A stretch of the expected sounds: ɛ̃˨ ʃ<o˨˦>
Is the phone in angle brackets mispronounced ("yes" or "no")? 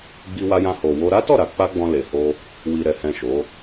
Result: no